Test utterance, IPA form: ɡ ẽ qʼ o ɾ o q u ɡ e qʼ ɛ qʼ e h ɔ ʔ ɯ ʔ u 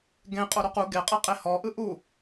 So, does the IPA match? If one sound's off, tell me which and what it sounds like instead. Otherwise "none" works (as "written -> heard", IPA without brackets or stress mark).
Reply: none